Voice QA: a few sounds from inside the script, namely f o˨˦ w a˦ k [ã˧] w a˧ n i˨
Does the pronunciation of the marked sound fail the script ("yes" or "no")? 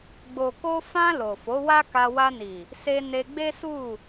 yes